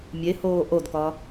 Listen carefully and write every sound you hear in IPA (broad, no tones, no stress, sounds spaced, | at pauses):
mʲ e h oː ʔ o d k ɒ